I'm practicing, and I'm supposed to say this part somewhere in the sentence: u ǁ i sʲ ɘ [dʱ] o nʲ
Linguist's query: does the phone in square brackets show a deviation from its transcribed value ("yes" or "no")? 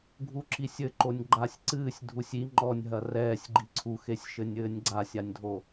yes